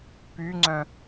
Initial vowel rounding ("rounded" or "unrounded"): rounded